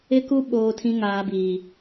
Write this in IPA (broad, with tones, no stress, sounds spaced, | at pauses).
ɪ˦ k u˦ ɓ oː˦ tʰ ĩ˦ ŋ aː˦ b iː˦